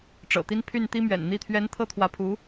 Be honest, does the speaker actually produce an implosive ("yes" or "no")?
no